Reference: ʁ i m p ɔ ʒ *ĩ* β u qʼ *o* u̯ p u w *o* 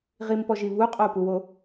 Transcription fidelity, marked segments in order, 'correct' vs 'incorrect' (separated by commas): incorrect, correct, correct